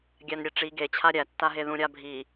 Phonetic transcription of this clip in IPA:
ɡʲ æ n ɾʲ e ʈ͡ʂ i ɡ e t͡ɕʰ a ɾʲ æ tː a ɦ e ð ũ ɾʲ a bʱ i

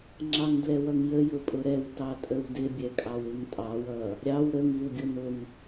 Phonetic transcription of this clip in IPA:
ŋ͡ǁ ɑ ŋ d l ɛ w ʌ ŋ j ə j ʊ pʼ ʊ ɾ ɛ w t ɑ tʼ ə w d ɪ bʲ ɛ kʼ ɑ w ɪ ŋ tʼ ɑ w ʌ | ɾʲ ɑ w ɾ ə ŋ i w ɡʲ ʊ n ʊ ŋ

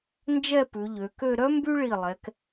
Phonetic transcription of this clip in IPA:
n d͡ʒ ɛ˥˧ p ʉ˩˧ ʎ ø˩˧ k ø˥˧ ɾ œ˥ m b y˥ ɭ i˧˩ lˠ ɛ˩˧ k

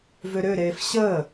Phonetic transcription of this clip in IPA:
v ø ɾ ø ɾ eː f ɕ əː

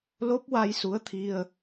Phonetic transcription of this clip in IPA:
l o˦˥ p̚ w a˧ j s u˧˥ ə̯ t̪ʰ i˧ ə̯

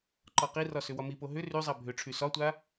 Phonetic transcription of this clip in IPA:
ǃ ɒ q i r ɒ s ʏ w ɒ m i p o ɦ ʏ r y zˤ a bʱ ʏ ʈ͡ʂʰ y s ɒ tʷ a

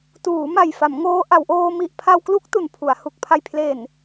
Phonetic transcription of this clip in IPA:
t uː˩˦ m a˨˩ j f a˩˦ m ŋ oː˦˥ ʔ a˩˦ w ʔ oː˧ m i˨˩ ʔ pʰ a˧ w k l u˦˥ k̚ t u˨˩ n pʰ u˩˦ a̯ h u˨˩ k̚ pʰ a˨˩ j pʰ l e˨˩ n

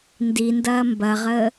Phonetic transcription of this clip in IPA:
n d i n d ɐː m b ɐ ʁ əː

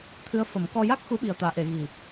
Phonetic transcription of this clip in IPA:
t̪ʰ ɨ˧˥ ə̯ f ə˨˩˦ m k ɔ˧ j a˦˥ k̚ x u˧˥ ɓ i˨˩ ə̯ t̪ aː˨˩˨ ʔ e˨˩˨ ɣ i˨˩

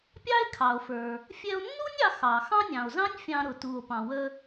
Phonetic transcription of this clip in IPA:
pʲ ɑ˥ e̯ kʰ ɑ˩ o̯ f ə˞˩ | fʲ ɛ˧ o̯ nː u˥ nʲ ɑ˧ x ɑ˩ x ɑ̃˥ nʲ ɑ̃˩ o̯ z ɑ̃˥ nʲ fʲ ɑ̃˧ ɾ ʊ˩ t u˩ o̯ p ɑ̃˩ w ə˧

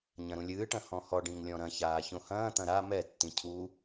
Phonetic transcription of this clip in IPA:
ɲ ɐ̃ ɾ ũ lʲ ɨː ʈ ɐ̃ h ɔ̃ h ɔ ɖ ĩ ŋ lʲ ɔ̃ ɾ ɐ̃ ç aː ç õ h ɐ̃ː t̪ ɐ̃ ɾ a m ɛ tː ĩ cʰ u

